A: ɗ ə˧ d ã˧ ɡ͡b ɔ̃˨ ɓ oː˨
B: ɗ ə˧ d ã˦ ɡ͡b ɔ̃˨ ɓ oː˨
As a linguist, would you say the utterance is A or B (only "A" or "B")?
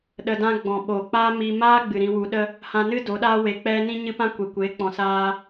B